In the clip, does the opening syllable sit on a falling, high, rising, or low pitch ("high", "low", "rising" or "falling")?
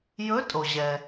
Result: rising